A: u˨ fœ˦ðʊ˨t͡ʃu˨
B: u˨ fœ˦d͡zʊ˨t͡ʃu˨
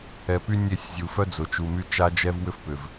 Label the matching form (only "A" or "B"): B